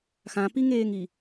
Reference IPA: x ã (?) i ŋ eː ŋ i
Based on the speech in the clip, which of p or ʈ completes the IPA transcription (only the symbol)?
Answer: p